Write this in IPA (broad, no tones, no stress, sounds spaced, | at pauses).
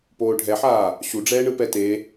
p oː ɖʱ ɛ ħ aː | ɕ u ɖ͡ʐ ɛː ɳ ɯ p ɛ t e